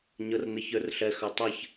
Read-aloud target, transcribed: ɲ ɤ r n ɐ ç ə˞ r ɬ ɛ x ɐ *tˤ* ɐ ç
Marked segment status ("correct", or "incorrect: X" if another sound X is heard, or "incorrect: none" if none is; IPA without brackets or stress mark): correct